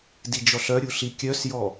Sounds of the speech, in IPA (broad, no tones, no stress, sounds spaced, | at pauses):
d i d͡ʒ ɔ ɬ œ ɾʲ u ɬ i kʲ œ s j ɔ